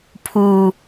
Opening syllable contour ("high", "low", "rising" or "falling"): low